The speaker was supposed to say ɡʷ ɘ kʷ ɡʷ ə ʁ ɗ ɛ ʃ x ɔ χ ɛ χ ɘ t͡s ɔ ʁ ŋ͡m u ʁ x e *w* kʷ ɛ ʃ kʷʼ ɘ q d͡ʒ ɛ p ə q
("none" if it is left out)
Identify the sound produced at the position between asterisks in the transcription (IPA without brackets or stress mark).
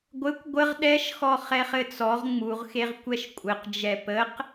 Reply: ʁ